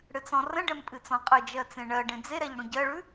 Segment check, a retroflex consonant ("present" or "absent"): present